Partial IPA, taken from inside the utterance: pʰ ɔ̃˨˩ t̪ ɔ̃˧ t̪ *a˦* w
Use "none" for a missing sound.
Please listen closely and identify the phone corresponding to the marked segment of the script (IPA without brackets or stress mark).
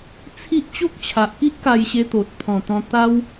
a˦